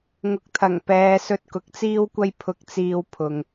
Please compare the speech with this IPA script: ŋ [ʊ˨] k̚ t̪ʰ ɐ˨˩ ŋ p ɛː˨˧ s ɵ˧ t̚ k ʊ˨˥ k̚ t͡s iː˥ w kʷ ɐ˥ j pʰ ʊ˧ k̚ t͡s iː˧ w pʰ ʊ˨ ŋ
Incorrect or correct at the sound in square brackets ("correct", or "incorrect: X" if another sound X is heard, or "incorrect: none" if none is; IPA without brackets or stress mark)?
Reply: correct